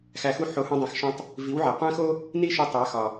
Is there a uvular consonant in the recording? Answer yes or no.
yes